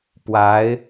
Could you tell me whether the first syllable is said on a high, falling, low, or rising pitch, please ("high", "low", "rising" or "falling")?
rising